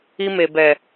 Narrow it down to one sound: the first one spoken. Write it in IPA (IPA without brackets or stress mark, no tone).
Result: i